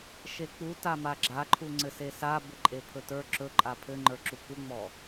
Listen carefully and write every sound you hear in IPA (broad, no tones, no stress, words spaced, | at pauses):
ʃek͡pu tamaɡ͡ǁaǃʰu ŋ͡ǀɘsesa bɘǃʼepʰɵtə˞ ǁɵ ǃʼapʰɘ ŋ͡ǃə˞ǁukuŋ͡mɔ